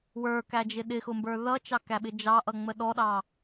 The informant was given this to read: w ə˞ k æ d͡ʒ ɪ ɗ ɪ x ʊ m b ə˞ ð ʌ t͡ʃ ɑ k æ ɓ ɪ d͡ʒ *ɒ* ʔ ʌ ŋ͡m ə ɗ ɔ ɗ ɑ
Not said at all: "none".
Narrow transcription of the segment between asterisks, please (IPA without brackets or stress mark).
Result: ɑ